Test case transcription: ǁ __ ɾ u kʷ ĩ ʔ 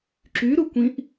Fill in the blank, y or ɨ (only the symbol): y